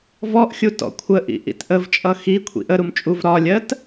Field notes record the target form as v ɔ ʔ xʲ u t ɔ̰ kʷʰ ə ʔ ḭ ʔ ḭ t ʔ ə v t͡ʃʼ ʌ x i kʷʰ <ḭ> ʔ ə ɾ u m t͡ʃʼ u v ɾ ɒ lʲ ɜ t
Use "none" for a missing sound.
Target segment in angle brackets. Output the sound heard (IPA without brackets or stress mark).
ḭ